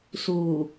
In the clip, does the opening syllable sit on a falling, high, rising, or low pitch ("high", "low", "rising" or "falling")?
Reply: low